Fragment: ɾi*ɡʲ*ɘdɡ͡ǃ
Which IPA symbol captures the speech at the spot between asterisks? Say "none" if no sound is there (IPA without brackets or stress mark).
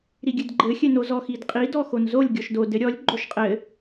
ɡʲ